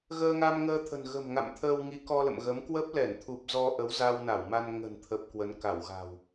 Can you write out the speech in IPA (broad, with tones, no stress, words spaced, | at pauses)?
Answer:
ɣəː˧ŋa˧mŋəː˧ t̪ʰə̤˨˩nɣə̤˨˩m ŋa̰˧˨m t̪ʰəː˧wŋi˨˦ kɔ˧lə̰˧˨mɣə˨˦m kwə˦˥p̚lɛ˧˩nt̪ʰu˨˩p̚ zɔ˧ʔə˨˦w za˧wna˧˩wma˧n ŋə̤˨˩nt̪ʰə˨˩p̚ kwə˨˦nka˧˩wɣa̤˨˩w